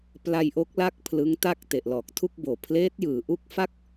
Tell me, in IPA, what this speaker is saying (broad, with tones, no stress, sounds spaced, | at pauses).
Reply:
p l a˧ j ʔ o˦˥ k̚ l a˦˥ k̚ pʰ l ɯ˦˥ ŋ t a˥˩ k̚ t e˨˩ ʔ l ɔː˨˩ k̚ tʰ u˥˩ k̚ b oː˨˩ pʰ l eː˦˥ t̚ j ɯː˩˦ ʔ u˦˥ k̚ f a˥˩ k̚